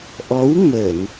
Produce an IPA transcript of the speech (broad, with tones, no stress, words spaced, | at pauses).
ʔɔ˨˦w mə˧˩˨n